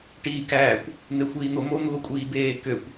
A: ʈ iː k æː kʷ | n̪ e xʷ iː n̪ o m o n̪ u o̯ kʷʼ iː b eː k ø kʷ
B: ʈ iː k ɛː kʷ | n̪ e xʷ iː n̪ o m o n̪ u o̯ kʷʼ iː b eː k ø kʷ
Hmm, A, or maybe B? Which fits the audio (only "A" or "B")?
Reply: A